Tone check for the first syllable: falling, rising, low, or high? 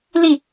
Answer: falling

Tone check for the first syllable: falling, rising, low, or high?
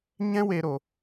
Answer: high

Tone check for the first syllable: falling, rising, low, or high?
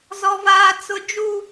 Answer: high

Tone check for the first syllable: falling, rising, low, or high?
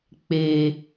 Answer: low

